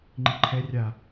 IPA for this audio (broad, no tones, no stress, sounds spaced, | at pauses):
ŋ͡ǃ i ǃʰ ɛ rʲ a